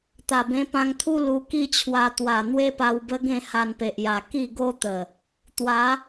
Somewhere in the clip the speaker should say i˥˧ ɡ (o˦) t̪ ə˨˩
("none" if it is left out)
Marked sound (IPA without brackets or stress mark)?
o˦